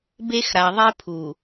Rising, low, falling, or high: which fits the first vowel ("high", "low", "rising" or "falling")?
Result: high